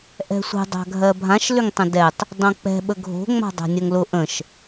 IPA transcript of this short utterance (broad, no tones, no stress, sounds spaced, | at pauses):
ʔ ɛ̤ sʷ ə̤ dˤ a̤ ɡʱ ɜ bʱ ã ʃ l ʏ ŋ tˤ ə̃ d ɛ tˤ | dˤ õ k͡p ɛ̤ ɓ ə ɡʱ o̤ ŋ͡m a̤ dˤ a̤ nʲ ɜ ŋ l ʊ ʔ ə̃ ʃ